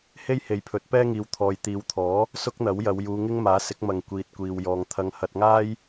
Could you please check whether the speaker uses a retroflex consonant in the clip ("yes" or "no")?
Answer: no